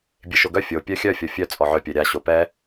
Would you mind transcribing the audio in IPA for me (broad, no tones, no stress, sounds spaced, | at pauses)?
bʲ e ʃ o ɡ œ fʲ o pʲ œ xʲ œ fʲ ɔ fʲ œ t͡sʼ ɔ ʕ œ pʲ œ ɾʲ a ɕ o p ɛ